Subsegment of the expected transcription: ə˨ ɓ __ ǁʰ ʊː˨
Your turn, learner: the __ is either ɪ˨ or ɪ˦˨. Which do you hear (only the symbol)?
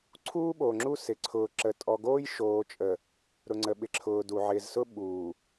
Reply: ɪ˨